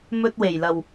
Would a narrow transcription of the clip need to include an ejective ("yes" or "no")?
no